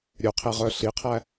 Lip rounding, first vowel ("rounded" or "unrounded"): rounded